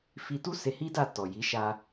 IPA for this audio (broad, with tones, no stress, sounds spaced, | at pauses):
f i˧ t u˦ s e˧ h i˦ d a˦˨ t ɔ˨ j i˨˦ ʃ a˧